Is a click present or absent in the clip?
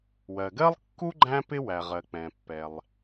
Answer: present